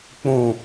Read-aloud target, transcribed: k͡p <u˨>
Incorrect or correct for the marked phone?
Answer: incorrect: ũ˨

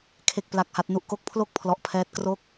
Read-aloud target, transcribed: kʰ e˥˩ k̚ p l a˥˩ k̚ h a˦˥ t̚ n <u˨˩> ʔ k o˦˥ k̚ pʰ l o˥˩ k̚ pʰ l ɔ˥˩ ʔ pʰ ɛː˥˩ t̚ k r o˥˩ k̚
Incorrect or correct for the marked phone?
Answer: incorrect: u˥˩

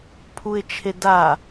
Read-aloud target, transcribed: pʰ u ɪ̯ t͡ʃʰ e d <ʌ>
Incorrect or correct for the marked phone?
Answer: incorrect: a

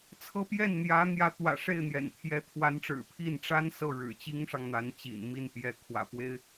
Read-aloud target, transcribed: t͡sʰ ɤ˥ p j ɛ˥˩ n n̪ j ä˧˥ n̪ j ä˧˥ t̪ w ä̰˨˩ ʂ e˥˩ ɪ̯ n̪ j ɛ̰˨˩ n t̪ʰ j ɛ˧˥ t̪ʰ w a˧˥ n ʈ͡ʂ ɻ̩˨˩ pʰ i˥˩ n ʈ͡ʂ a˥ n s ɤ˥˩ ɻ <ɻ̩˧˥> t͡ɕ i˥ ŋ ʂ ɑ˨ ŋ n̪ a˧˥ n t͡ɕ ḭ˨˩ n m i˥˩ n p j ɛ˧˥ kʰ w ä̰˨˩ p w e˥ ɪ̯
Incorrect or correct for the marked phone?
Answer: incorrect: ɻ̩˨˩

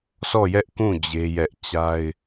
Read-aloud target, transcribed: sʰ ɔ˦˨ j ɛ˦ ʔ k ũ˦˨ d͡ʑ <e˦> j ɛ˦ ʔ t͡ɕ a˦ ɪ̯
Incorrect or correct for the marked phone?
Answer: correct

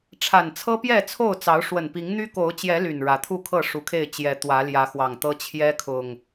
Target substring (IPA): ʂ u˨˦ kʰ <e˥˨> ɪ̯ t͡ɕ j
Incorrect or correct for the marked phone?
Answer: correct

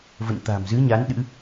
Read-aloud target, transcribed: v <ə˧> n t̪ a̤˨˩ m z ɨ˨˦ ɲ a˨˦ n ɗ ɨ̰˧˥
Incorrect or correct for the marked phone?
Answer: incorrect: ə̰˧˨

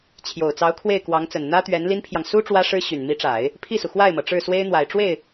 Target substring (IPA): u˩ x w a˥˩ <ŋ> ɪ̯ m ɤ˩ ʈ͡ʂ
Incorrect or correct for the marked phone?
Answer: incorrect: none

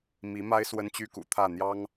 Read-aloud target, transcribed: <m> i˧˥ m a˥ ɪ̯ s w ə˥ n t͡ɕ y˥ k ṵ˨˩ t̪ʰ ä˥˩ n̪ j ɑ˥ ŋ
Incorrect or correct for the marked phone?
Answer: correct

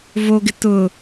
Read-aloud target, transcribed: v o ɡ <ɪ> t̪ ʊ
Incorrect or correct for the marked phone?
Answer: correct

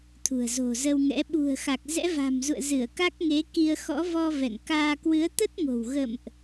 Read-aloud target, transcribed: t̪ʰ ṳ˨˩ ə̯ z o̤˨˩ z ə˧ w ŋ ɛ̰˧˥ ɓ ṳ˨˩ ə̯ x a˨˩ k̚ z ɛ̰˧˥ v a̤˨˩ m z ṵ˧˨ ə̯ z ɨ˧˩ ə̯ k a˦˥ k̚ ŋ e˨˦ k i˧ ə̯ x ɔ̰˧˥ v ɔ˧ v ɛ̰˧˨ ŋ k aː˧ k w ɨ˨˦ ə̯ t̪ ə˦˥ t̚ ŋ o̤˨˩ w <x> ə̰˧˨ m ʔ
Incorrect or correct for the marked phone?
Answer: incorrect: ɣ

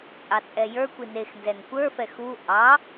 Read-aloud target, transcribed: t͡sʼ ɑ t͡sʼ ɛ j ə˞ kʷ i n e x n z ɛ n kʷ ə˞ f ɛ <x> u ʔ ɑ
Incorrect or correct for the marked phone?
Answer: correct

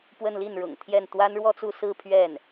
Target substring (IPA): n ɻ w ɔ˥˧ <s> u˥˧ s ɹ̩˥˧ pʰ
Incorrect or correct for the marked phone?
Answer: incorrect: t͡s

